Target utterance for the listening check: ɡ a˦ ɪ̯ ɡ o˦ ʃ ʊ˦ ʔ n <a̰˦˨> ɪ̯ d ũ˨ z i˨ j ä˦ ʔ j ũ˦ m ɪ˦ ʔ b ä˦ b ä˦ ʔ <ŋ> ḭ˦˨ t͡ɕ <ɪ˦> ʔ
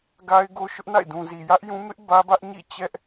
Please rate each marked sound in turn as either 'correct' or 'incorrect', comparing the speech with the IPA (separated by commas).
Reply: correct, incorrect, incorrect